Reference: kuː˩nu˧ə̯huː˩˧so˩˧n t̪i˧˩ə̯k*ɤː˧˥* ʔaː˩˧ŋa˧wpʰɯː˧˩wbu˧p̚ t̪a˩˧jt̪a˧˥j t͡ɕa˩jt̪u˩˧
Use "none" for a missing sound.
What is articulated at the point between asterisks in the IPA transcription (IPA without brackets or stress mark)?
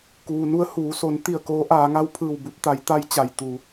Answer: oː˧˥